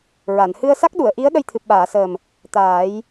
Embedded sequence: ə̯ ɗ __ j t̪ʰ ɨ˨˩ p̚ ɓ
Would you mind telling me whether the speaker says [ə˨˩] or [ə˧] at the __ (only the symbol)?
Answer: ə˧